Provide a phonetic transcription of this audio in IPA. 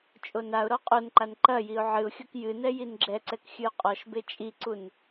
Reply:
t͡ʃʼ o n a ʊ̯ ɾ ɔ qʼ o n ǃ a n ǃ ɐ j i ʊ̯ ʕ ɨ ʊ̯ xʲ o k j ɨ n ɛ j i n ɡ͡ǁ ɛ ǀ ɛ k xʲ ɨ ʊ̯ qʼ ɔ ʃ b e t͡ʃʼ i ǀ u n

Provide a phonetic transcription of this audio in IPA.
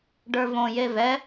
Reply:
ɖ ə˞ v õ j e v ɛ

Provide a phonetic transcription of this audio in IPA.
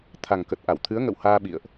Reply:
t̪ʰ a˨˩ ŋ k ə˨˩ t̚ ʔ a˧˩ w t̪ʰ ɨ˨˦ ə̯ ŋ ə̰˧˨ w h aː˧ ɓ ḭ˧˨ ə̯ ʔ

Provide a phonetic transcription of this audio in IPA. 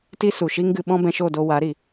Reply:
t i˦ s u˨ ʃ i˦ ŋ ɡ ɨ˧ ɓ ɔ̃˦ b ɛ̃˧ ʃ o˦˨ d o˧ w a˨˦ ɾ i˨

